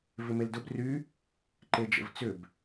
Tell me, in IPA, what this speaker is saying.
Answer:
v ɪ m e l d ʊ b r y | ǃ e d͡ʒ ə̰ v t͡s ʏ b

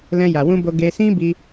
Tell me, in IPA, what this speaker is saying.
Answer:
l ɛ̃˧ j a˨ w ũ˧ b o˧ ɡ e˧ s ĩ˦ b i˧

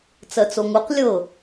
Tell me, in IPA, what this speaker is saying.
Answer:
t͡s ɜ t͡s o ŋ u q lʲ ɤ

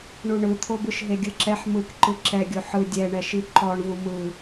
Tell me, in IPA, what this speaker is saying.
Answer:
ɳ u ɳ ɯ t̪ʰ o b ɯ ʃ ɦ e ɡʲ ɯ ǁ ɛ ħ m ɯ k ǃ ɯ ǁ ɛ ɡʲ o ħ ɯ dʲ ɛ ɳ ɛ ʃ i ǃ ɔ ɳ v u m ɯ

